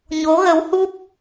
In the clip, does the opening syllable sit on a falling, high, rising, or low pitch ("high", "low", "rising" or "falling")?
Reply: rising